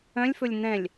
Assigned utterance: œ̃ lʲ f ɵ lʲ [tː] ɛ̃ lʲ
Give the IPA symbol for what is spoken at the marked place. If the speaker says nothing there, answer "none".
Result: n̪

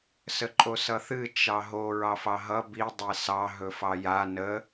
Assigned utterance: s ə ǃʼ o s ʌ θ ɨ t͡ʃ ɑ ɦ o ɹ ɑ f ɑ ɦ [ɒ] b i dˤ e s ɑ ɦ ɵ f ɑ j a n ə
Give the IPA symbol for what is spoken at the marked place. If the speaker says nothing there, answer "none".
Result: ʌ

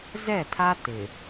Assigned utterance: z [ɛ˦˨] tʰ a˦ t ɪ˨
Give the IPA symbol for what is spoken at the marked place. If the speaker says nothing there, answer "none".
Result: ɛ˦˨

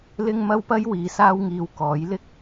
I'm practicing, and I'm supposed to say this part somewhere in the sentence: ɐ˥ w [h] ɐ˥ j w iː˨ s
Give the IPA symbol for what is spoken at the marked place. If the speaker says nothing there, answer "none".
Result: p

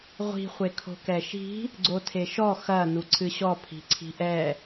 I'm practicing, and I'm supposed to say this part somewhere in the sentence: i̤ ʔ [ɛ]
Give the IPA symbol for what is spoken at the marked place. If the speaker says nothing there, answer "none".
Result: ɛ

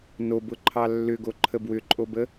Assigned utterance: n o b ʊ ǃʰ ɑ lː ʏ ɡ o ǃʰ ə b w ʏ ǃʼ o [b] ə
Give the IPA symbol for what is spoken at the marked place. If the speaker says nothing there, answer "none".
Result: b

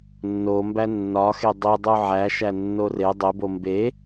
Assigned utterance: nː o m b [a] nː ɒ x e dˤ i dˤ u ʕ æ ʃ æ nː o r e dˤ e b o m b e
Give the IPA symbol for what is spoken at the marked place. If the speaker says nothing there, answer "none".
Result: æ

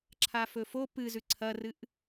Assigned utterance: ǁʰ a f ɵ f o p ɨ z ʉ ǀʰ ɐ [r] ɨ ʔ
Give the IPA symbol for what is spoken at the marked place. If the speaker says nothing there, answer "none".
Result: r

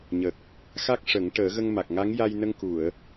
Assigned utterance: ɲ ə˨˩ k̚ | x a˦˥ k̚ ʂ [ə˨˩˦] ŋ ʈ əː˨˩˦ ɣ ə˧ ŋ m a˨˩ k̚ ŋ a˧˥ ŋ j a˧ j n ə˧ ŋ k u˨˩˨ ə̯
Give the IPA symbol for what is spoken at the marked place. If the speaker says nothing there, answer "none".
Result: ə˨˩˦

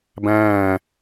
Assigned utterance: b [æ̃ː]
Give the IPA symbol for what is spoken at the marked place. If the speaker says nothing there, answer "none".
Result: æ̃ː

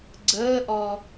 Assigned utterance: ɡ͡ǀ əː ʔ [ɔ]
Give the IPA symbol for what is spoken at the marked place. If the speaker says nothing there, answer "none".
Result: ɔ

